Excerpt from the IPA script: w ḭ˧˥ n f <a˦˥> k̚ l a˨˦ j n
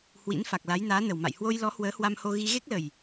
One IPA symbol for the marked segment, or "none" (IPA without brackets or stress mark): a˨˩